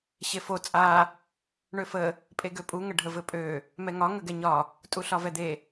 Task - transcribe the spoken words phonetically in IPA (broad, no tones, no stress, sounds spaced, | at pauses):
ɕ e f o t͡sʼ a | ɳ ø f ə | pʼ e ɡ ø pʼ u ŋ ə ɖʱ ə v ɘ pʼ ø | m ɛ ŋ ɒ ŋ ə ɡ ɛ ɲ ɒ | tʼ u ɬ ɒ v ɛ d̪ e